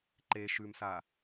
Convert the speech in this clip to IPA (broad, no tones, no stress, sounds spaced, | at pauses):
ǃ e ʃ ʉ m s a